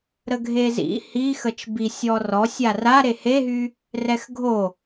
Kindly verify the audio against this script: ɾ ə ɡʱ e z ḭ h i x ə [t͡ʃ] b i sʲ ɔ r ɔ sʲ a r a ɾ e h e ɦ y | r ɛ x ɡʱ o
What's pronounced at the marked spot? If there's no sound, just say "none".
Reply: t͡ʃ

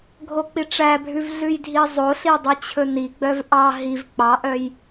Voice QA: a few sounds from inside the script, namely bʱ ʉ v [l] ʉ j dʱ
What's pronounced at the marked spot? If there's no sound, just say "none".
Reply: ɮ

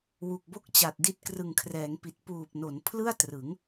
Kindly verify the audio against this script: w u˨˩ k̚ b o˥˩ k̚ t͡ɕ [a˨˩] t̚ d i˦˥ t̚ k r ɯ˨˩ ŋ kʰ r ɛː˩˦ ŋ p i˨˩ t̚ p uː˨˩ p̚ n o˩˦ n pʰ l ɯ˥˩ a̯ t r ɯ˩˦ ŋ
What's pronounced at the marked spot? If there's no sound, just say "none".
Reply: a˨˩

